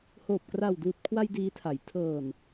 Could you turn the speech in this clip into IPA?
hoː˨˩p̚kra˨˩w duː˨˩t̚kʰwa˧j diː˦˥tʰa˩˦j tʰɤː˨˩n

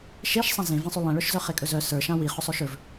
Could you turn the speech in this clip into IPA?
ʃeʃsˤã zẽvẽsˤy lˠẽɭœʃzœ χekʼɵzœ sə˞ʃã wi χɵsˤɵʃɵv

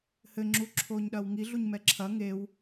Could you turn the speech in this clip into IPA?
hɘ ŋ͡ǁuǁʰoːɲɗɐːwŋi ɮuɲmɛǁʰɐ ŋew

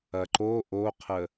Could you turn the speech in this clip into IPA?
ɐǃo ʔoqʰə

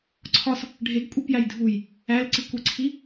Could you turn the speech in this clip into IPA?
ǀʰɒs | ɖʱeɡkʷʼipjæj dʱuj | ælǀikʷiǀʰi

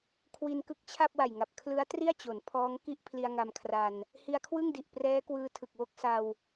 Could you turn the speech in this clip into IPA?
kʰwi˧n kɯ˦˥k̚t͡ɕʰa˥˩p̚wa˨˩jŋa˨˩p̚ kʰlɯ˦˥a̯ tri˥˩a̯t͡ɕo˩˦n pʰɔː˦˥ŋki˥˩ʔ pʰli˧a̯ŋa˧m kʰra˧n | hi˧a̯kʰwɯ˥˩ŋdi˨˩ʔ prɛː˦˥kwɯː˧tʰɯ˨˩k̚ wo˦˥k̚sa˧w

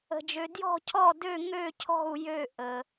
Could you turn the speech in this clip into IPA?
ə̤˩d͡ʒø˩ djɔ̤˥˩cʰɔ˥˩ dø˥˩ ŋø˥˩cʰɔ̤˥˩u̯ jø˥˩ ʔə˩

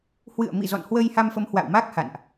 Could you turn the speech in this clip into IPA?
hwɨ̰˧˨ə̯mḭ˧˨ zɔ̰˧˨nhwə˧jha˧mfə˨˦m hwa̰˧˨wma˦˥k̚ha̰˧˨nʔ

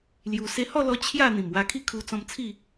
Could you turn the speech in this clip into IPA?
lju˧ se˧hɔ˥˧lɔ˧ t͡ɕʰja˥˧ n̪ĩ˨˩mwa˧kʰi˥˧ kʰu˧ t͡sɔ̃˧mt͡sʰi˥˧

